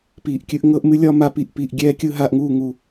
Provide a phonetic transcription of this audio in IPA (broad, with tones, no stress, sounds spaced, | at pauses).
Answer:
p iː˨ ʔ kʲ ɨ˦ ʔ ŋ ɤ˧ ʔ m ɨ˧ lʲ ɒ˧ m a˦ p i˦˨ ʔ p iː˧ ʔ ɡʲ ɛː˦ kʲ ɯ˦ ɦ aː˧ ʔ ŋ uː˦˨ ŋ u˨